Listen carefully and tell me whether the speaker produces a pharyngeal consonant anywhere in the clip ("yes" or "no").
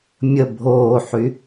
yes